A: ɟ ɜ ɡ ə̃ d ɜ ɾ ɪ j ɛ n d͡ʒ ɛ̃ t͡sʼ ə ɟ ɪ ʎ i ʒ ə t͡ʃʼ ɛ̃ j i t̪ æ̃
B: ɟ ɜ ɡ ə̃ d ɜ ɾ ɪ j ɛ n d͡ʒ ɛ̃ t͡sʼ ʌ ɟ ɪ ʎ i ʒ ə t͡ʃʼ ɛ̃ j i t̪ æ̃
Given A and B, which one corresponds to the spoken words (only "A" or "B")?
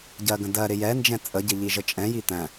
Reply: A